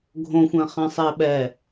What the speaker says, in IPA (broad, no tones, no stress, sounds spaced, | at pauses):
ɡʱ õ xʷ ɛ̃ χ ɛ̃ sˤ ɪː ɓ ɛ